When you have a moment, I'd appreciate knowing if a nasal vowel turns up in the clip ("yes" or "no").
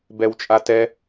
no